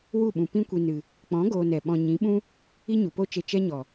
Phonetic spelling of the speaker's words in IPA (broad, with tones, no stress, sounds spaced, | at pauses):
w u˦˨ ɓ ũ˨ p ĩ˦ kʷ i˧ n ɨ˨ | k͡p ɔ̃˨˦ ɡ oː˧ n ɛ˨ ɓ ɔ̃˨ ɲ ĩ˨˦ ɓ ũ˦ | i˦ ɲ u˨ p o˦ t͡ʃ e˧ t͡ʃ ɛ˦ ɲ ɔ˨